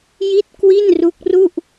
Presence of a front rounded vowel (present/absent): absent